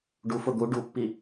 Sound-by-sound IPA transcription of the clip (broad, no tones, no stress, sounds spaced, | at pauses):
ɖ u f ʊ d̪ u ɖ u pː i